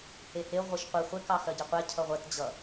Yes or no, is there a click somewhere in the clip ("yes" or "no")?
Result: no